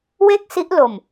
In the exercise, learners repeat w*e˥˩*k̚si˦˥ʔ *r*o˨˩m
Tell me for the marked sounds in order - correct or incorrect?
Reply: correct, incorrect

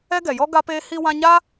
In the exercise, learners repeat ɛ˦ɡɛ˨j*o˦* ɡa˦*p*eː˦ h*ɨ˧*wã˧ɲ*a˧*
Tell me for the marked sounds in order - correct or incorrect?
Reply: incorrect, correct, incorrect, incorrect

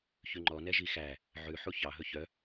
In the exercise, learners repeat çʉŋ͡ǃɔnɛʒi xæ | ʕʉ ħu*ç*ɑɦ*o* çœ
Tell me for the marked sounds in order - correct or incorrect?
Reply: correct, incorrect

